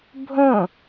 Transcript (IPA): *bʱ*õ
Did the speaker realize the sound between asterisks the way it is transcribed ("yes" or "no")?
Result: yes